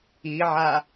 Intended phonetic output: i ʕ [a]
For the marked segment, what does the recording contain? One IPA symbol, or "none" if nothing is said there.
a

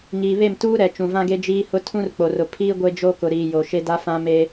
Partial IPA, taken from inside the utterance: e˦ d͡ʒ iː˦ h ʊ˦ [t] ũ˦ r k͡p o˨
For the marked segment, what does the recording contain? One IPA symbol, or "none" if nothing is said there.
tʰ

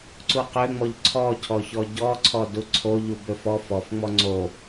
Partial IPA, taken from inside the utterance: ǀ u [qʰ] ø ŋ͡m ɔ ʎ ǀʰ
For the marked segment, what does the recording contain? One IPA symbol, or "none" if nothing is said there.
q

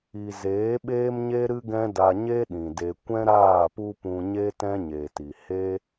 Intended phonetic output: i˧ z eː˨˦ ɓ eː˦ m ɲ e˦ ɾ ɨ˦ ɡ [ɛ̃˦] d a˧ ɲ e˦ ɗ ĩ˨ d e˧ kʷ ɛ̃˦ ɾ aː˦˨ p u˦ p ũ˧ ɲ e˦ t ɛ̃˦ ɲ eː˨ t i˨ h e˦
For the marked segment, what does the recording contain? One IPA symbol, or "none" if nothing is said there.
ɛ̃˦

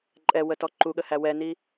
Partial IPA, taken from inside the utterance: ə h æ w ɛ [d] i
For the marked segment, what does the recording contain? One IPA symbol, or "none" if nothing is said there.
n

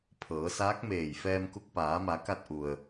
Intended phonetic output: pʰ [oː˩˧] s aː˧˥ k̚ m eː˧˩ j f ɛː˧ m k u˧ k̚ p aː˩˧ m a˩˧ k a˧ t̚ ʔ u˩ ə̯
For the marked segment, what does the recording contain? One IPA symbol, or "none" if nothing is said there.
ɤː˩˧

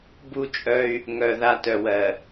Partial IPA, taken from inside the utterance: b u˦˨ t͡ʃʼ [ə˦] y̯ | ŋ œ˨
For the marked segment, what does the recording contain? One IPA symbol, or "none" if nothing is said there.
œ˦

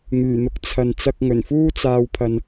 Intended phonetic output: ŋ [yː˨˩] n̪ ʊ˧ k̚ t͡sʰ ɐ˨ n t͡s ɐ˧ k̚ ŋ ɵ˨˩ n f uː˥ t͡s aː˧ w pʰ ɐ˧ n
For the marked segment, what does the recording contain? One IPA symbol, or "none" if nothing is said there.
yː˨˩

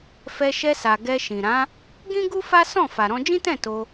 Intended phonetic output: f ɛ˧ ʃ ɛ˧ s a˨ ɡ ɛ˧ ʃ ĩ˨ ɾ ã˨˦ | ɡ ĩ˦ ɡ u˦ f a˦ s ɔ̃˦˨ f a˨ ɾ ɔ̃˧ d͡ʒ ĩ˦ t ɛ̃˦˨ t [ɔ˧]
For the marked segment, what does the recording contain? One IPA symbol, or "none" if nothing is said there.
o˧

